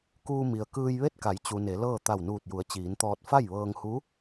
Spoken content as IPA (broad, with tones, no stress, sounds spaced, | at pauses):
k uː˧ m i˩ ə̯ k ɯː˧ j ʋ e˥˨ t̚ k a˩˧ j t͡ɕ u˩ n e˩˧ l ɤː˥˨ t̪ a˧˩ w n uː˧˩ t̚ j u˩˧ ə̯ t͡ɕ iː˩˧ n t̪ ɔː˧ t̚ f a˥˨ j ʋ ɤː˧ ŋ h u˧˥